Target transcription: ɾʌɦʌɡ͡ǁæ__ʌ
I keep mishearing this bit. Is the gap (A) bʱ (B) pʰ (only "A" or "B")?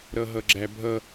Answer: A